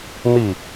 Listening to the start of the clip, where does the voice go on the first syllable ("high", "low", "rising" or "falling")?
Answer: falling